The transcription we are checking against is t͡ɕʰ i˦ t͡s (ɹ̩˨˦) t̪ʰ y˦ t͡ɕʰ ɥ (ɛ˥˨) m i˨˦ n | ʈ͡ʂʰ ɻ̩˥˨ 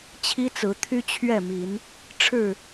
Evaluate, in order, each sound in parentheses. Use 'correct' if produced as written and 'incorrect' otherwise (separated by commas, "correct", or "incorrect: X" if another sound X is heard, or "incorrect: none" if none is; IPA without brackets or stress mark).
correct, correct